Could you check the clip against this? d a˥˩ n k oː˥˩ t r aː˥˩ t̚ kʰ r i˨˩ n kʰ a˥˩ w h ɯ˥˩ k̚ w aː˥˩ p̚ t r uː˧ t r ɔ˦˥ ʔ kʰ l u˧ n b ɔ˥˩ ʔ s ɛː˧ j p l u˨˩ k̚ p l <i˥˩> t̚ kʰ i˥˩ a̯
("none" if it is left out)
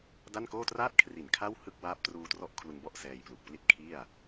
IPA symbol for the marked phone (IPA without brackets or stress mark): i˥˩